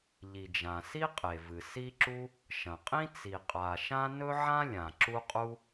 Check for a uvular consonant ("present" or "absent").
present